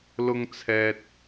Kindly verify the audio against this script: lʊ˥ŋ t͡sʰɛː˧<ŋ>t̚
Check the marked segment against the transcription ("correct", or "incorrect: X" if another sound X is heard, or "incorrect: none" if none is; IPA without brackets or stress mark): incorrect: none